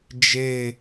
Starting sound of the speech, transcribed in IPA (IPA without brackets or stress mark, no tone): d͡ʒ